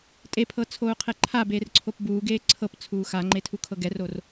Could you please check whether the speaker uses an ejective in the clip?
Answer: yes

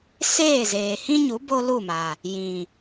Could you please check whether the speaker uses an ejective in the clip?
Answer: no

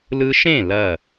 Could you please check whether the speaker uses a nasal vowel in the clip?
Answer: yes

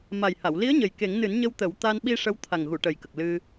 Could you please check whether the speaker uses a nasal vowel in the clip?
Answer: no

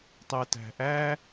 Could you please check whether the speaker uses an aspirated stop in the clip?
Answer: no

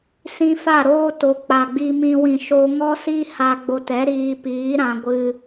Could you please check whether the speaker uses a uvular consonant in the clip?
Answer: no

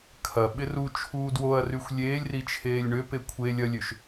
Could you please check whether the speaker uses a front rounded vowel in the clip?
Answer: yes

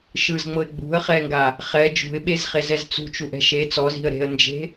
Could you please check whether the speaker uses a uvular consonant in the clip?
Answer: yes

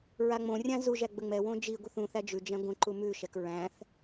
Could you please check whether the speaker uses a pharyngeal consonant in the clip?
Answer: no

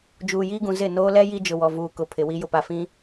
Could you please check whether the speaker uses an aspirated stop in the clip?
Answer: yes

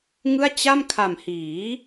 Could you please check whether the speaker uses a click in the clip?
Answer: no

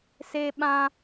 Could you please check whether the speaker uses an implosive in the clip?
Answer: yes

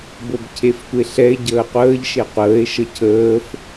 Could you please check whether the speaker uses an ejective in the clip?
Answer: no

